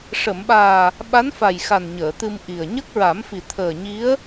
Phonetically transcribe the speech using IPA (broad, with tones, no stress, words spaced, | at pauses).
ʂə˨˩˨mɓaː˨˩ | ɓa˧˥nfa˨˩jxa˨˩n ɲəː˨˩˨t̪ɨ˧mʔi˨˩ə̯ ɲə˦˥k̚ɹa˨˩˦mfi˨˩ t̪ʰəː˨˩ɲi˧˥ə̯